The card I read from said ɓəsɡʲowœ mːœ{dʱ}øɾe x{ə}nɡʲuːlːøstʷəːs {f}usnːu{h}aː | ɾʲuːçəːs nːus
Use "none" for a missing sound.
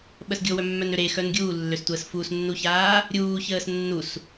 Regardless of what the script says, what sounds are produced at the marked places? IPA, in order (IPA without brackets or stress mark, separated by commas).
n, œ, f, ç